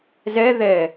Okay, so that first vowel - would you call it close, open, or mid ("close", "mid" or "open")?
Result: mid